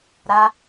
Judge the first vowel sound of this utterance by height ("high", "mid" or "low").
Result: low